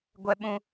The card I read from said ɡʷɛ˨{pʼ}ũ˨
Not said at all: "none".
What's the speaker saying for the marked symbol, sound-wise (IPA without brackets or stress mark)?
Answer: ɓ